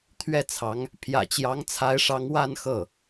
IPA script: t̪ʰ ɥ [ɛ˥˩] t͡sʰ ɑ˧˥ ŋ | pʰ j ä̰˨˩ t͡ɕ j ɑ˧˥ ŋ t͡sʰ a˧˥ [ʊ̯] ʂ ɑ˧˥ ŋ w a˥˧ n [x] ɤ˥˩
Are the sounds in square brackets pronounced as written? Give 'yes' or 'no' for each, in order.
yes, no, yes

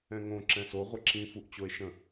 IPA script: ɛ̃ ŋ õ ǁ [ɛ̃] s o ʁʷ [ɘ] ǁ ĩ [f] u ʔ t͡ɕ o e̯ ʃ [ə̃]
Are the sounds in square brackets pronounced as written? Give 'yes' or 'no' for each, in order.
yes, yes, yes, yes

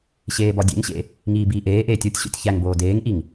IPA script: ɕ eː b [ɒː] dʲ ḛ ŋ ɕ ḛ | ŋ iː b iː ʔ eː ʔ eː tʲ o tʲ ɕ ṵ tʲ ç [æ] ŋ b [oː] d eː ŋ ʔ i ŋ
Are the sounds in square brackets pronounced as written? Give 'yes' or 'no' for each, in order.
no, yes, yes

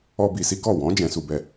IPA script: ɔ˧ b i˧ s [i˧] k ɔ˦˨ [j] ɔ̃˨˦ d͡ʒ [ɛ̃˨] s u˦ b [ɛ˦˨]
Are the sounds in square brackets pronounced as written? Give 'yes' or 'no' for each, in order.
no, no, no, yes

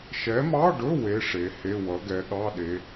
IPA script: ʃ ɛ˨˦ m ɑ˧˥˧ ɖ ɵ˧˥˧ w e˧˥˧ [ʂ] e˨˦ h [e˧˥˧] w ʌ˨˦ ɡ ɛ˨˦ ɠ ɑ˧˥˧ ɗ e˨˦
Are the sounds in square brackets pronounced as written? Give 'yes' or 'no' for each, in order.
yes, yes

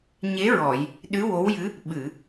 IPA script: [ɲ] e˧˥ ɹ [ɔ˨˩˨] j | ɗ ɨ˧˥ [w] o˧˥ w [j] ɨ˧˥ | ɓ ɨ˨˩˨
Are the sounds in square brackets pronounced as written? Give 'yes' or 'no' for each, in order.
yes, yes, yes, yes

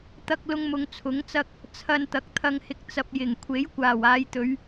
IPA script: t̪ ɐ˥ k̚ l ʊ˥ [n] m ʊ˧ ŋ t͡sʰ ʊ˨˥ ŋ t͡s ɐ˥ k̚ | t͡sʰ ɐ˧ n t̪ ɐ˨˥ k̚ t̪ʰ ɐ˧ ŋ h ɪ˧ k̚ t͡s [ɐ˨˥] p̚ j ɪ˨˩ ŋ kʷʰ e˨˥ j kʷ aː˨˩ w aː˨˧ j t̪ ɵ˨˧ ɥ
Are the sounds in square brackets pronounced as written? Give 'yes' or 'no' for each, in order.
no, no

